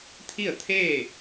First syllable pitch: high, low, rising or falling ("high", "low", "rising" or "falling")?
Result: falling